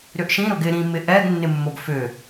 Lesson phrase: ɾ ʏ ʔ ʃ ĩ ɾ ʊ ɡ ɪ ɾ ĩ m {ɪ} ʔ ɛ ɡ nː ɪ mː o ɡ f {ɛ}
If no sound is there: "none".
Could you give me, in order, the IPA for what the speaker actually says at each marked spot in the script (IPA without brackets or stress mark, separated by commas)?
ɪ, ʏ